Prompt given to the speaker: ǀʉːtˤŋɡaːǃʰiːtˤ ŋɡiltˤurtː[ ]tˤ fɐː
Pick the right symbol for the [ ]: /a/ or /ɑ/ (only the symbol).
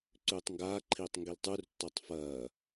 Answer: ɑ